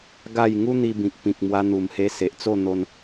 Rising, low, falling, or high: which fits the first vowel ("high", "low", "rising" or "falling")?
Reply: falling